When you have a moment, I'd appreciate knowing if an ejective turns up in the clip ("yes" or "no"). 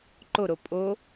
yes